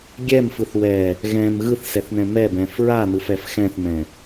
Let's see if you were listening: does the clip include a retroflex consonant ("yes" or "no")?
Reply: no